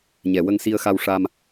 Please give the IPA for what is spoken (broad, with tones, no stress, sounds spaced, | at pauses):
ɲ ɛ˨˩ w ə˧ ŋ s i˧ ə̯ x a˧ w ʂ a˧ m